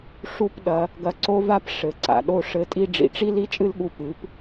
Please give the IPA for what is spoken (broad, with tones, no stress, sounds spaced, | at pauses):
ʂ u˦ p ɗ ɐ˧ | ɡ ɐ˧ ǀ o˦ v a˦ p ʂ ɘ˨ ǀ a̰˨ ɗ o˧ ʂ ɘ˧ tʼ i˦ ɖ͡ʐ ḭ˨ ʈ͡ʂ i˦ l i˦ t͡ʃʼ ɨ˦ l ɠ u˧ p ɨ˨˦ p